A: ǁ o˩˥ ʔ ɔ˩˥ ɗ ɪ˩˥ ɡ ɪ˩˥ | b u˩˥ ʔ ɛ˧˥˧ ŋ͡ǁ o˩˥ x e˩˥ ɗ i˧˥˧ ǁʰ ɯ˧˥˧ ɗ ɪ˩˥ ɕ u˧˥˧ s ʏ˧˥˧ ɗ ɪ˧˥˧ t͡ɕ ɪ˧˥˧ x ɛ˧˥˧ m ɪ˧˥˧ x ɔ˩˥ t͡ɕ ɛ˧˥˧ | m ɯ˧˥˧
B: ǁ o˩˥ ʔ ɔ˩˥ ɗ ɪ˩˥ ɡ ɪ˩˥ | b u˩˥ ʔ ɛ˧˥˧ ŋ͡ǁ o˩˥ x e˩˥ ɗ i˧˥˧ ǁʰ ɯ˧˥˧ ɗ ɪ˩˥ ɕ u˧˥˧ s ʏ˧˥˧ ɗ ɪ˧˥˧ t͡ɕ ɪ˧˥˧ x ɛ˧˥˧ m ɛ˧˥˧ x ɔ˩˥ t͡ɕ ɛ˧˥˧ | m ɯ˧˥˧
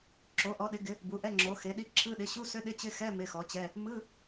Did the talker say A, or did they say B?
A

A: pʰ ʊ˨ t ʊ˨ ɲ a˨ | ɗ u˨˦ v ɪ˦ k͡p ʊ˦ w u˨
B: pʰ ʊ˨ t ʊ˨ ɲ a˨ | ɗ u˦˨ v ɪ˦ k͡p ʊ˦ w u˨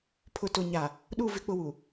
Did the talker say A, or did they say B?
B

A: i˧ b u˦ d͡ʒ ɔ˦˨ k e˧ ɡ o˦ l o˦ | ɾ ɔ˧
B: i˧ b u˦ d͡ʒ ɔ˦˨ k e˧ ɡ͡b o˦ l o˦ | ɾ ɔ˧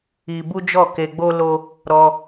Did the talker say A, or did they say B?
B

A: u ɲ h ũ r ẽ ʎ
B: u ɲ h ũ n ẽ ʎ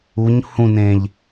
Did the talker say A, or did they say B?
B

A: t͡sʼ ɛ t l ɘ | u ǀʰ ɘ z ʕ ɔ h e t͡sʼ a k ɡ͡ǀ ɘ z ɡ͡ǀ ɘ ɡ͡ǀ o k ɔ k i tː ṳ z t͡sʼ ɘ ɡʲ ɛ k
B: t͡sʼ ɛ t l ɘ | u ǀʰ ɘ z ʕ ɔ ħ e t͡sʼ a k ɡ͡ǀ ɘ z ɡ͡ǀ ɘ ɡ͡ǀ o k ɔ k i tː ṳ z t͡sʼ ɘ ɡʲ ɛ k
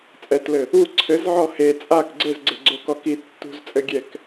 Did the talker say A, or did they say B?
A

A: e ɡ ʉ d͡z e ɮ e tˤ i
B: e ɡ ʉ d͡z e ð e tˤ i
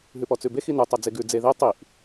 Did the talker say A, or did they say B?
B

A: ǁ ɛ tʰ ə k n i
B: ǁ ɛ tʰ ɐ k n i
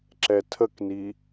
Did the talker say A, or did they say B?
A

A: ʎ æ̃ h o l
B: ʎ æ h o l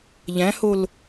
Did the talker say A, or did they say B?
A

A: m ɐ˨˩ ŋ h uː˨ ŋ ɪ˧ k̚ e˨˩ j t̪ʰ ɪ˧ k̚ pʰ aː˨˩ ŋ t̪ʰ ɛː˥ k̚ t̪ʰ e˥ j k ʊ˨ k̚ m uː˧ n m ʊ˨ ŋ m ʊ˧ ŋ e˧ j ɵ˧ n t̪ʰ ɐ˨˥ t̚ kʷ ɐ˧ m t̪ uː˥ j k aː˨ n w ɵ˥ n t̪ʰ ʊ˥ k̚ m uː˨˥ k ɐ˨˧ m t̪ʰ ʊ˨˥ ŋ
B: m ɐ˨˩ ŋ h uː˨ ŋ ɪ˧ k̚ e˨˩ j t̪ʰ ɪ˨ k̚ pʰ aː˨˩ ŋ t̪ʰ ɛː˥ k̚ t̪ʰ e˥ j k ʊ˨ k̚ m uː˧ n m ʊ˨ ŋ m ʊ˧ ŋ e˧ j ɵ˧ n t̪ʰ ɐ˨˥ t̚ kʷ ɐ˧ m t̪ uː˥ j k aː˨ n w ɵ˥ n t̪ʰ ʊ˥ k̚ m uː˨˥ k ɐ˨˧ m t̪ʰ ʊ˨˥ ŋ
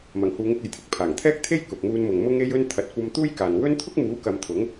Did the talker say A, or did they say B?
A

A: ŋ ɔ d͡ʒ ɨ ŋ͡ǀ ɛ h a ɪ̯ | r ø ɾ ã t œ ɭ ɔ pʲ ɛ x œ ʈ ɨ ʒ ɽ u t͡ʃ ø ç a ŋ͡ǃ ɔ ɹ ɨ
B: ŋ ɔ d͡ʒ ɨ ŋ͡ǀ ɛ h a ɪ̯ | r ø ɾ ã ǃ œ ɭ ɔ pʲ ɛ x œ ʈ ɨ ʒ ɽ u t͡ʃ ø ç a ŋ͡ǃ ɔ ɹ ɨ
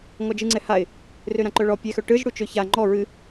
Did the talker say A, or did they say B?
B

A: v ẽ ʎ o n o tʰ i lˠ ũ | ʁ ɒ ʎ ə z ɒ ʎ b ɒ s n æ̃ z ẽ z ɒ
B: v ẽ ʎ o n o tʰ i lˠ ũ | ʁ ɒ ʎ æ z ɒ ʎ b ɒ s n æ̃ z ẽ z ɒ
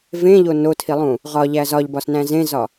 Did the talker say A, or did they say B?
B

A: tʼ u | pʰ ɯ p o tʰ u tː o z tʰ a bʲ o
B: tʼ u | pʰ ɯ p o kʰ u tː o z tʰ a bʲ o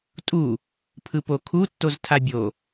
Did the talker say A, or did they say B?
B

